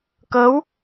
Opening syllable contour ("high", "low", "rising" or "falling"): rising